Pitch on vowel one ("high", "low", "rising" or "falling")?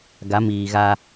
rising